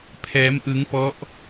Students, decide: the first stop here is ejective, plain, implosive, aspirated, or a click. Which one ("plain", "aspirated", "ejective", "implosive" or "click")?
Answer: aspirated